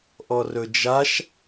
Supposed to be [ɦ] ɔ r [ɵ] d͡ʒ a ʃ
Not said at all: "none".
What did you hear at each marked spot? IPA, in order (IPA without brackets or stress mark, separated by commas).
ʔ, ɵ